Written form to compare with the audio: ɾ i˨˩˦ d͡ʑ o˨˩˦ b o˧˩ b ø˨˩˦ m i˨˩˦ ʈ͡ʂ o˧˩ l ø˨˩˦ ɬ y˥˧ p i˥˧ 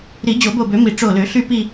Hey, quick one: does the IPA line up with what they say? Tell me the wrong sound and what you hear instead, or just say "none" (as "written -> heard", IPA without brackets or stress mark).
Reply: none